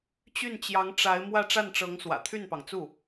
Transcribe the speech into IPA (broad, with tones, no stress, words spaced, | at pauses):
t͡ɕy˥˩nt͡ɕjɑ˧˥ŋʈ͡ʂa˧˥ɪ̯ mwä˥˧ʈ͡ʂa˥˩nʈ͡ʂɤ˧˥ŋ swä̰˨˩t̪ʰy˥˩npɑ˩ŋt͡su˥˩